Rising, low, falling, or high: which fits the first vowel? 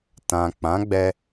low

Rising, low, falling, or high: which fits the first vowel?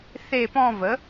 falling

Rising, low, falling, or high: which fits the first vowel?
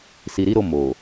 low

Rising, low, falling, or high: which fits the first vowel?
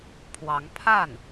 rising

